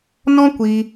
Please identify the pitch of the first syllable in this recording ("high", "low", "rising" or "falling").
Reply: high